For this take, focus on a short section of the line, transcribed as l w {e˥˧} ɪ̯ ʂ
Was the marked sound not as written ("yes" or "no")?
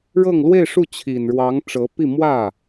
no